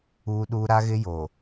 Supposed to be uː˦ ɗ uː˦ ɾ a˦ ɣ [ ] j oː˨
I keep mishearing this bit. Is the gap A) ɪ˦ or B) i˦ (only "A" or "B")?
A